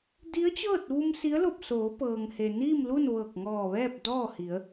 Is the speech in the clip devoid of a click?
yes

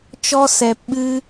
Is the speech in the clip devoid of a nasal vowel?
yes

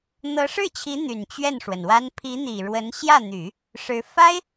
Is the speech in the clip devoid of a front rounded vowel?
no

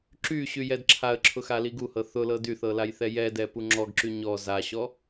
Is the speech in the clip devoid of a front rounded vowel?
no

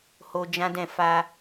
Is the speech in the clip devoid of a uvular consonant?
yes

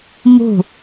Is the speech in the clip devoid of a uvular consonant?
yes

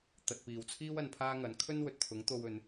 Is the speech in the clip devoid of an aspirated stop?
no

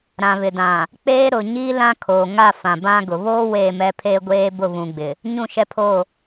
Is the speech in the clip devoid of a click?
yes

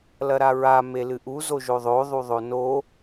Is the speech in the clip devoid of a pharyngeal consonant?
yes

